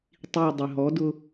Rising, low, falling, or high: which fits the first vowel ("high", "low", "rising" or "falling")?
falling